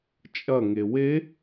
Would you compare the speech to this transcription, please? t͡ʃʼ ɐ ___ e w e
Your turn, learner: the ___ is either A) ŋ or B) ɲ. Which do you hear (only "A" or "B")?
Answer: A